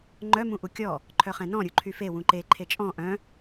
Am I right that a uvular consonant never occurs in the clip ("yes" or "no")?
no